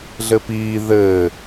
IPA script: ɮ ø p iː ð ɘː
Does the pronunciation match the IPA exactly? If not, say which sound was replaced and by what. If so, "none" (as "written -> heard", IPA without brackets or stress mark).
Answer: ø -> ɘ